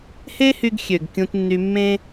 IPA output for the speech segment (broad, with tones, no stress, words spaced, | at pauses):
he˦hy˧ɡxʲø˨ɡ kʲũ˧tnːy˧mːẽ˦